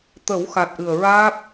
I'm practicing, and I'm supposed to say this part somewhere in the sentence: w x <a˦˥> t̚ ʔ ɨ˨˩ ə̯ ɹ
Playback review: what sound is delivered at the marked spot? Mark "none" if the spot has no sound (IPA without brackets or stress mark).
a˨˩